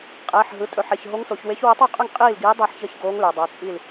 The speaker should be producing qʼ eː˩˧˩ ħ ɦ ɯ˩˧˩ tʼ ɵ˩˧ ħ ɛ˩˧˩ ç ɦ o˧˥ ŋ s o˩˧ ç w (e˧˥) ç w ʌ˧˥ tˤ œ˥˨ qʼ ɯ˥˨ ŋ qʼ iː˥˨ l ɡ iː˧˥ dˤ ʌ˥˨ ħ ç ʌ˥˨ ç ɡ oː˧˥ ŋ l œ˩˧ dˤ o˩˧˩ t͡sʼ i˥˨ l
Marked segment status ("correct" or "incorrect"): correct